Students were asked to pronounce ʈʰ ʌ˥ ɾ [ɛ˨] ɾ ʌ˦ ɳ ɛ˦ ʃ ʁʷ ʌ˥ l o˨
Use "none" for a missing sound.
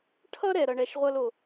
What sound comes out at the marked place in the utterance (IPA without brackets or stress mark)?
ɛ˨